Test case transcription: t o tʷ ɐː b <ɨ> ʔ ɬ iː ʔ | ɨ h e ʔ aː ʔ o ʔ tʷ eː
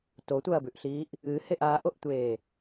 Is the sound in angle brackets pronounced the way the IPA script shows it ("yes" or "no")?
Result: no